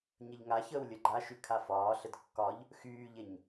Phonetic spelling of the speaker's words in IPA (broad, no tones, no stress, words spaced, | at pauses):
ɲəʎŋaçəːw lʲəɡ͡ǃaʃy kʰafɒːɬəd kːɒʎ | xyːʎeɲ